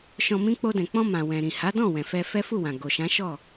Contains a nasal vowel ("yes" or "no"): yes